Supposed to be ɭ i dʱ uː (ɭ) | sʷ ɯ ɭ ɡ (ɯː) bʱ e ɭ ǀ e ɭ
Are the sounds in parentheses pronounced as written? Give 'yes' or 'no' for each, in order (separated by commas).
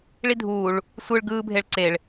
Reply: yes, yes